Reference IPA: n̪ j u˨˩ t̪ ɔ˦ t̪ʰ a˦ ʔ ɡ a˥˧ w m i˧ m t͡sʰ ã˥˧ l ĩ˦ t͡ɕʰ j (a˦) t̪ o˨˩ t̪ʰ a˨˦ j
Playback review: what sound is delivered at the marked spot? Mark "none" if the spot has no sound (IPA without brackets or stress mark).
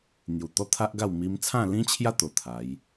a˦